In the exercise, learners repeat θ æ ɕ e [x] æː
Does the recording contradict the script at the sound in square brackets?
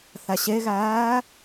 yes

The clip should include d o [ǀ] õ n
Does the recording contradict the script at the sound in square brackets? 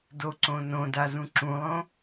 no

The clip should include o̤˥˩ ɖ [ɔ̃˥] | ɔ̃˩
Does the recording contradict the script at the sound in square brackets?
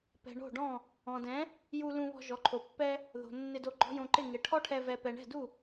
yes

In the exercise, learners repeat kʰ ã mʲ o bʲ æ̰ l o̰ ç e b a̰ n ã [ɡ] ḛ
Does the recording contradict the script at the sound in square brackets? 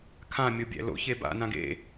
no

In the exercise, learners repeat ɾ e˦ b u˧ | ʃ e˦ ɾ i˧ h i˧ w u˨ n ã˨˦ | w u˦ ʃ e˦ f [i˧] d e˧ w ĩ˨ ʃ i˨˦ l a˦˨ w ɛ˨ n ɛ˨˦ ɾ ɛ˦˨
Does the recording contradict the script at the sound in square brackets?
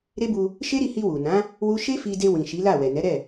no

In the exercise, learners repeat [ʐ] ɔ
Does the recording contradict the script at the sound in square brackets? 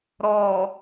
yes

